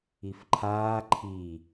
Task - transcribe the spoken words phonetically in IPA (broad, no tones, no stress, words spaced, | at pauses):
ifǃʰaː ǃʰi